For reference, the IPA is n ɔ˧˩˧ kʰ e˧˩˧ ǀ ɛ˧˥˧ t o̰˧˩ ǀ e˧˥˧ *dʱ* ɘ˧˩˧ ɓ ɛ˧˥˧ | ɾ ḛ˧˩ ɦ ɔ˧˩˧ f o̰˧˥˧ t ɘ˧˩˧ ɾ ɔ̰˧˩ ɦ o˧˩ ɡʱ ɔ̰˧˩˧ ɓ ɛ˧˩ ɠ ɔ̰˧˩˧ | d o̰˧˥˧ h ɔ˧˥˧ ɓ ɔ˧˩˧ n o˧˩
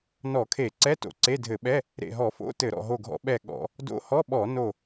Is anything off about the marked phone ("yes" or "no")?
no